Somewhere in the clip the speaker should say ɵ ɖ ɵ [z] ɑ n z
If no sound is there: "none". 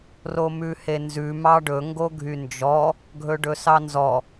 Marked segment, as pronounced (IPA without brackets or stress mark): s